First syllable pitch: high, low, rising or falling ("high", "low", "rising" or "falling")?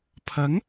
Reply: rising